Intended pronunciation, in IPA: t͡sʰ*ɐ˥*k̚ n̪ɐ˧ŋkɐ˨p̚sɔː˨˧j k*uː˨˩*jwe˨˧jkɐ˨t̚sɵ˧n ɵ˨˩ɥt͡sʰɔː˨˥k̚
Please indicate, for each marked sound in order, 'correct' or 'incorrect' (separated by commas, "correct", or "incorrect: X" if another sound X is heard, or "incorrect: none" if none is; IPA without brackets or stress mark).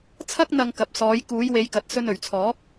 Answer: correct, incorrect: uː˨˧